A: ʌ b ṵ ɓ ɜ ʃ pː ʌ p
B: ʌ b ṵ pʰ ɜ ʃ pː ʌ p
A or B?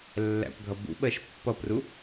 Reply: A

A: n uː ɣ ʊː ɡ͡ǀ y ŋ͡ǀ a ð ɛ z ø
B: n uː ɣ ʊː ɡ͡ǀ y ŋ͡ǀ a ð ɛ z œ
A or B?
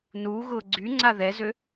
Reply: A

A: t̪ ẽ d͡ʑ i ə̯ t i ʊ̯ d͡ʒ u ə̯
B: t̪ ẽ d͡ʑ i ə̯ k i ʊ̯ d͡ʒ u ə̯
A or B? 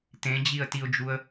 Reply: A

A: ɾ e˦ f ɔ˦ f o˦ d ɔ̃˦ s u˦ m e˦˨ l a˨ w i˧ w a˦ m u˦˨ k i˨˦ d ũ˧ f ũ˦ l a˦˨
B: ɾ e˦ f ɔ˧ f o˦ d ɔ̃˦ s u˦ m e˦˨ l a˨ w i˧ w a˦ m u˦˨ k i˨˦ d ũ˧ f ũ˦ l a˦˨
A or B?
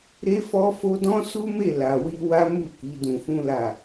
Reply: A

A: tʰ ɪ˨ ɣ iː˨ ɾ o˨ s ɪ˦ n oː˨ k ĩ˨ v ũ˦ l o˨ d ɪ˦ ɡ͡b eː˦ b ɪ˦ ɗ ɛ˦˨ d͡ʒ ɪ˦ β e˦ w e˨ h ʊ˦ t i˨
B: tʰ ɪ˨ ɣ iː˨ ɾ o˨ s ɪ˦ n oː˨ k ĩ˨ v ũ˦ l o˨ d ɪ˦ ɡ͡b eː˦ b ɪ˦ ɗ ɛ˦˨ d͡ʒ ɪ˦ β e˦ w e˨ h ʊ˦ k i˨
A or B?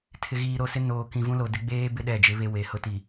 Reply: A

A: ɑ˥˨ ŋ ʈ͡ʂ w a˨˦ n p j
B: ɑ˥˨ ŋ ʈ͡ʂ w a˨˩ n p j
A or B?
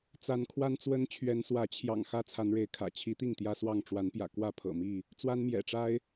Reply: A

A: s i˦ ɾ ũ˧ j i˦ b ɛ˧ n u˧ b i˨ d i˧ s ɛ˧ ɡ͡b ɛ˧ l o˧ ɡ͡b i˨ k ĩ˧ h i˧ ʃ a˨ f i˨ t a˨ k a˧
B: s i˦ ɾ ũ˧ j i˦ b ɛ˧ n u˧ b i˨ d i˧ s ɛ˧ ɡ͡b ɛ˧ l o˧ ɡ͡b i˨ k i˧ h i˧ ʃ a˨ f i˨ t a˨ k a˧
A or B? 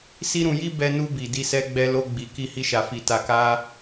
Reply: B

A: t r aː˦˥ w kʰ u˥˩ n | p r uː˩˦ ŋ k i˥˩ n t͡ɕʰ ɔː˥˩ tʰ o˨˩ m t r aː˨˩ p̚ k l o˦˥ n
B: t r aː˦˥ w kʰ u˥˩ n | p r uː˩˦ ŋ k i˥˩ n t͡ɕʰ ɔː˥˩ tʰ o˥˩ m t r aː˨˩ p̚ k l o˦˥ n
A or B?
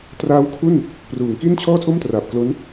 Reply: B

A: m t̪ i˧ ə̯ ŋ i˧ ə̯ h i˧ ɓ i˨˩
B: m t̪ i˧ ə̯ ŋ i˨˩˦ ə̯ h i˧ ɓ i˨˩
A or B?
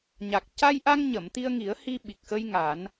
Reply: B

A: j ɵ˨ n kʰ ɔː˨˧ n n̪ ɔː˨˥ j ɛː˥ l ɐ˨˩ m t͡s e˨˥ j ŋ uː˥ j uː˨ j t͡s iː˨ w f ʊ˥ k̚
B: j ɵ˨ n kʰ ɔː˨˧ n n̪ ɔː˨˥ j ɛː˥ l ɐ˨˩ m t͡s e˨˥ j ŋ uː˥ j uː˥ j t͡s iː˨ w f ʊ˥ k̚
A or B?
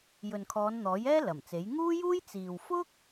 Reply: B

